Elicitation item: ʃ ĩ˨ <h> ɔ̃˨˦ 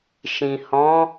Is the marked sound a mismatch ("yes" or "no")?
no